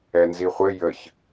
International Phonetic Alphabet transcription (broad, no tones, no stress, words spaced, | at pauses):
ɛnziχʷɘ jəç